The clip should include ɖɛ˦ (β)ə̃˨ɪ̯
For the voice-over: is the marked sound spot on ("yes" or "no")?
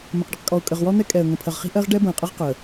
no